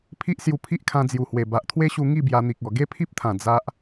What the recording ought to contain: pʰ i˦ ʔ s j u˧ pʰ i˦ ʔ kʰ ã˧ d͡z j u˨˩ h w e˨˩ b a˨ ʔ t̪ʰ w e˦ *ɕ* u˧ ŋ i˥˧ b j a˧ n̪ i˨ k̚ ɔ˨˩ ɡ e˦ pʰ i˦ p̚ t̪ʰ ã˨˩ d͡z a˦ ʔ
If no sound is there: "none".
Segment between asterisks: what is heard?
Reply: ɕ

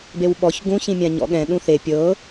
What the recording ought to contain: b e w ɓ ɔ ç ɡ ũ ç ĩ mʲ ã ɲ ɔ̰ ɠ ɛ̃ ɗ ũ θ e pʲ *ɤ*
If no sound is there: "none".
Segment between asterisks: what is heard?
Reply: ɤ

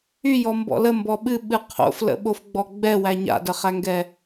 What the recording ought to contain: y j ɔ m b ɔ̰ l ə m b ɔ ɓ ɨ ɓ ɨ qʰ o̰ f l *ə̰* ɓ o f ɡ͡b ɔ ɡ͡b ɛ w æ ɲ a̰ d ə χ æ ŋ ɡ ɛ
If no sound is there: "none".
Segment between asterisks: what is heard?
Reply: ə̰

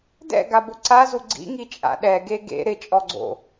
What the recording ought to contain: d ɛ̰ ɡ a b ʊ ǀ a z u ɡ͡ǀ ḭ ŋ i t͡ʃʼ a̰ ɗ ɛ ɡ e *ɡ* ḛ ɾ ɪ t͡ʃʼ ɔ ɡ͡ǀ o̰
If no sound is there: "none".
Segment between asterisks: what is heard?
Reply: ɡ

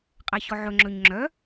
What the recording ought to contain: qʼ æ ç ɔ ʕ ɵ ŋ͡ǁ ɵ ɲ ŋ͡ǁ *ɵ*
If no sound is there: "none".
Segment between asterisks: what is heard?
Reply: œ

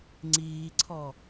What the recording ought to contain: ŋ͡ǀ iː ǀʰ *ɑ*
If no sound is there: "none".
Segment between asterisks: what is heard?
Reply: ɔ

